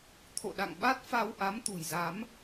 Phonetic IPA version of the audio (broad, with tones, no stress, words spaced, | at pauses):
t̪ʰo̰˧˨ɗa̰˧˨ŋɓa˦˥t̚ fa˧wʔa˨˦m t̪ṳ˨˩jza˨˦m